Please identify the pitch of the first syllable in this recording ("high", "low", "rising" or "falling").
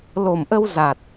low